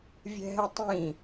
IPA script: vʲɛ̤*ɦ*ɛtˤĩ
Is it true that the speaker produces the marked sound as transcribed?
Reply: yes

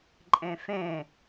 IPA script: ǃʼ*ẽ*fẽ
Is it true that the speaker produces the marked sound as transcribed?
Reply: yes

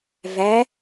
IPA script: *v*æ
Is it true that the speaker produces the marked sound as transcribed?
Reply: yes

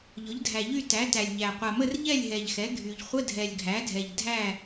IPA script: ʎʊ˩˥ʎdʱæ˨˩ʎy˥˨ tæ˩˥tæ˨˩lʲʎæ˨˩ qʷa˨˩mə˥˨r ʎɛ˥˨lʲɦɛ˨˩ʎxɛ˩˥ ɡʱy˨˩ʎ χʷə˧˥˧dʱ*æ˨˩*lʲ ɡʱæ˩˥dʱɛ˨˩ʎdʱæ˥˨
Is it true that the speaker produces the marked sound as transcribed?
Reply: no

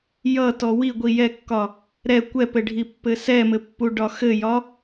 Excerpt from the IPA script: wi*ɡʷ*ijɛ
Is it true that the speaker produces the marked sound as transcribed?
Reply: yes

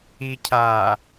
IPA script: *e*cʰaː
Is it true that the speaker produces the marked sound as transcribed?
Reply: no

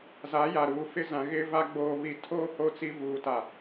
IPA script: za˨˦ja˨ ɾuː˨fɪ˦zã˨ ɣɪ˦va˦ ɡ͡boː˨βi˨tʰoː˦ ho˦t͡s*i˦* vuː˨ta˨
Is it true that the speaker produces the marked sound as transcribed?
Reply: yes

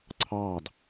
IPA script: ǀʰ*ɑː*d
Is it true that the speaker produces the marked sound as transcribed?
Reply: yes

